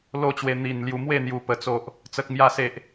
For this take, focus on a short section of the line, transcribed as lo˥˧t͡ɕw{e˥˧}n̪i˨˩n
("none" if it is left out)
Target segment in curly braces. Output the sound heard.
e˧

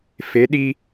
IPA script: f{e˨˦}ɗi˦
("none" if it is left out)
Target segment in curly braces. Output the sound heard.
e˨˦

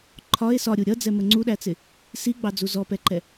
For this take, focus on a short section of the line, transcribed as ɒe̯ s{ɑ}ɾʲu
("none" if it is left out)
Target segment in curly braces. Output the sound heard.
ɒ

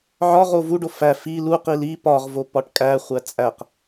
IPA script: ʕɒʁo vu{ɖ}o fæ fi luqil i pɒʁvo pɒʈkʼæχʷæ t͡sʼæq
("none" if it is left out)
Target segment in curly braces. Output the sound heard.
ɖ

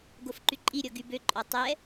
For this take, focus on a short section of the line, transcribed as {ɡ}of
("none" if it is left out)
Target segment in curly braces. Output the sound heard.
ɡ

